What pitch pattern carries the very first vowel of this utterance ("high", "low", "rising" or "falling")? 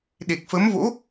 low